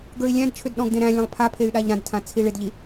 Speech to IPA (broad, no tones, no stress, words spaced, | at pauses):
ɡə˞i̯lʲæ̃dt͡ʃʰʏd ɗɔ̃ɡdẽɾæ̃lʲãlˠ pʰa pʰey̯ɗaʎɾãdtʰã t͡sʰiɭɪdʎi